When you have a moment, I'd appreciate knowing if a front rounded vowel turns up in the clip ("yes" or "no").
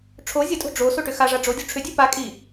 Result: yes